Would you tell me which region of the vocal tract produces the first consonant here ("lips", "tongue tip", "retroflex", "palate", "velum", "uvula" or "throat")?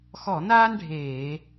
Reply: velum